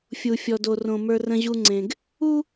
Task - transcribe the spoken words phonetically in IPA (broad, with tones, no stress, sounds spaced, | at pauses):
fʲ u˨ fʲ ɔ˨ d o˨ r õ˨ m ə˞˦ r ə̃˦ ʑ u˦ ŋ͡ǀ ẽ˨ ɡ | u˦